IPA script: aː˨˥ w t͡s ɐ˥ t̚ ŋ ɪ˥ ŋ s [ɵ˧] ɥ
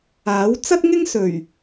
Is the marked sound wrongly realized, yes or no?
yes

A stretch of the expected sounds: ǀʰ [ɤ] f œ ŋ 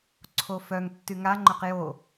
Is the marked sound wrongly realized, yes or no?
yes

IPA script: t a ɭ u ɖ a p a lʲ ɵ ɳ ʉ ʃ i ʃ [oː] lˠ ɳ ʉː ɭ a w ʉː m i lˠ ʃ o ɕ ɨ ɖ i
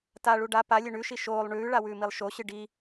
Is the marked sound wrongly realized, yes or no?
no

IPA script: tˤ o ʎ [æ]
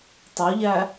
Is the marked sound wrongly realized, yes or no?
no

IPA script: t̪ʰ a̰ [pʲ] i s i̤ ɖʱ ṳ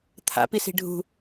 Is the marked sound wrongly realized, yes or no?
yes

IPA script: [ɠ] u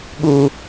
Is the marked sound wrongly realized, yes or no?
no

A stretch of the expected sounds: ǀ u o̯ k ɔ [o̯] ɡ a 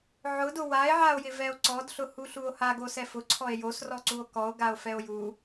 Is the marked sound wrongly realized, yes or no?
no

